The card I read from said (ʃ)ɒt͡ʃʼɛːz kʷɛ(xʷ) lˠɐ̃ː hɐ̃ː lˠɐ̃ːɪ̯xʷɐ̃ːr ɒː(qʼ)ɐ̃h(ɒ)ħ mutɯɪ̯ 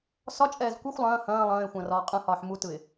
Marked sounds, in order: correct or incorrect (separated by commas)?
incorrect, correct, correct, incorrect